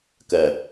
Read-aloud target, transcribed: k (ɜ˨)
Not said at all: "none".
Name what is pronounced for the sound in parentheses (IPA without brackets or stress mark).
ɜ˨